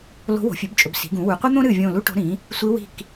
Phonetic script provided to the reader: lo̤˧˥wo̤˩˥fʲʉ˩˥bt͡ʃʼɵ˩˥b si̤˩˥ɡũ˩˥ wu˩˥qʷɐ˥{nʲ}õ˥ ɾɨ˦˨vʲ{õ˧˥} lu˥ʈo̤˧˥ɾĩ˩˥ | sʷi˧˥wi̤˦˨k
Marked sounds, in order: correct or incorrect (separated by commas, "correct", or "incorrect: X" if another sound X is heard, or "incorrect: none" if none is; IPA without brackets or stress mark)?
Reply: incorrect: n̪, incorrect: õ˦˨